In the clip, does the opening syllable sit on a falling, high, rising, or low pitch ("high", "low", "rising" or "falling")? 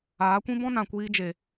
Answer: rising